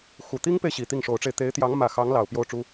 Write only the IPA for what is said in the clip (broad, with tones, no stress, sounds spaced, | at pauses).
x u˨˩ t̪ i˥ ŋ p e˨ ɪ̯ ɕ i˨˩ t̪ i˥˩ ŋ ʂ o˧˥ ʊ̯ ʈ͡ʂ e˧ ɪ̯ t̪ e˧˥ ɪ̯ t̪ j ɑ˧˥ ŋ m ä˨˩ x ɑ˧˥ ŋ l ɑ˨˩ ʊ̯ p j o˥˩ ʊ̯ ʈ͡ʂ u˥